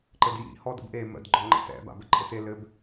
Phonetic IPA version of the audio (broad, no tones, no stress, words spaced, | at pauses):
ǃɘdjḭ hɔdə̰bʔe mə̰d ɡ͡ǃɔŋ͡ǃə̰tɛ̰ ba̰bɘǃʼɘte lɘb